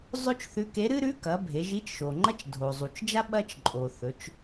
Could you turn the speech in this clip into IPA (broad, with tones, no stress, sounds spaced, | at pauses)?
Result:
zˤ ɵ˥ t͡ʃ θ ʉ˧˥ k e˧˥ ɾ ɨ˥ ɾ ʉ˧˥ k ɐ˩˧ bʱ e˩˧ ʒ i˧˥ t͡ʃ ʃ o˩ ŋ͡ǃ ɐ˥ t͡ʃ dʱ o˩ zˤ u˩ t͡ʃ d͡ʒ a˥ ɓ ɐ˥ t͡ʃ ǃʼ o˩ θ ɵ˩˧ t͡ʃ